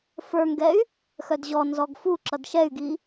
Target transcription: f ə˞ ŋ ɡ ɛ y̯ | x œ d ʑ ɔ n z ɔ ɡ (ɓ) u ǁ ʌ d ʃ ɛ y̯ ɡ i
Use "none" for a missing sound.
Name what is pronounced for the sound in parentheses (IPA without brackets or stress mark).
f